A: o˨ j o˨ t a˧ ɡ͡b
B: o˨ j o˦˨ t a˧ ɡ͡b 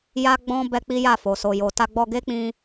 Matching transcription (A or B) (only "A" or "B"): A